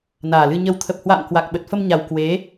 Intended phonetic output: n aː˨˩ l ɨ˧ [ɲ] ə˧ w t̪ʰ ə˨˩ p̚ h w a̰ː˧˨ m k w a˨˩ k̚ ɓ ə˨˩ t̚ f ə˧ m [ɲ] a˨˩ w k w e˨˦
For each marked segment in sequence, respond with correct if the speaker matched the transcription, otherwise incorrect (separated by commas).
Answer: correct, correct